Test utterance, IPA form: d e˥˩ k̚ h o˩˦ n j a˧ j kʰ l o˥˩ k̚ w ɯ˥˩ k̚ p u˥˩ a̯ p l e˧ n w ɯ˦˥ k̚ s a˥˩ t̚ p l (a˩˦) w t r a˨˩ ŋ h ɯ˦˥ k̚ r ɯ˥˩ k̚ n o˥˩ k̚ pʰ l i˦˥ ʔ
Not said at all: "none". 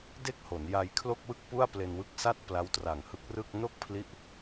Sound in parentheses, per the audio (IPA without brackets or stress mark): a˦˥